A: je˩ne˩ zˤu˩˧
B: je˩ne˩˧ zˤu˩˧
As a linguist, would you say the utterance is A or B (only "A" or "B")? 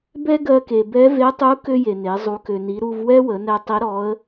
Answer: B